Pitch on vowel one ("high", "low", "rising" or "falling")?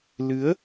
rising